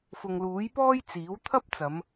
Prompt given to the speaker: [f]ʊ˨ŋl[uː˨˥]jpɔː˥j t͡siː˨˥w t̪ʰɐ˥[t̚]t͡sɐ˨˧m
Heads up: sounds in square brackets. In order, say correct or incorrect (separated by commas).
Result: correct, correct, incorrect